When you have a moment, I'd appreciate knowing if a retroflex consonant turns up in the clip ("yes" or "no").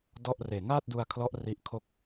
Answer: no